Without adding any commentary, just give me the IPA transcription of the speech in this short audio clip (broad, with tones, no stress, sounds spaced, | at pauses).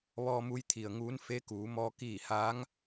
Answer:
ʋ ɔː˧ m u˧˥ j t̪ʰ i˩ ə̯ ŋ uː˧˥ n f e˧˥ k uː˩˧ m ɔː˧ k iː˧˩ h aː˧˥ ŋ